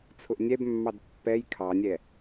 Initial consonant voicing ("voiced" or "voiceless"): voiceless